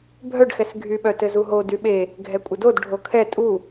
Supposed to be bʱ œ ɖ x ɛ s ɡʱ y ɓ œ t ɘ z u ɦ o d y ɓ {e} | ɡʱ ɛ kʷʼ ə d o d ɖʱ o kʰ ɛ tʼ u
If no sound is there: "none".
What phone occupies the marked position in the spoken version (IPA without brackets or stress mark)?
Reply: e